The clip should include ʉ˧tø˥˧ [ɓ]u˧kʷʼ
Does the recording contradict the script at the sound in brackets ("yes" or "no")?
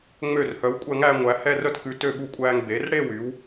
no